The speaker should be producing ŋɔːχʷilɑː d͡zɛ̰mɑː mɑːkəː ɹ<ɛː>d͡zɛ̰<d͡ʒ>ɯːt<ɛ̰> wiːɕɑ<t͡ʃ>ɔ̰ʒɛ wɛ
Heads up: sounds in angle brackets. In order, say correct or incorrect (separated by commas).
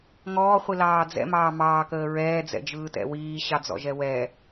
correct, correct, correct, incorrect